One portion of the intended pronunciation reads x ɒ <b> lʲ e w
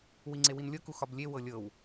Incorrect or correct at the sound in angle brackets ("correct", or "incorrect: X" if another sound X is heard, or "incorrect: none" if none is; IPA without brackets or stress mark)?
correct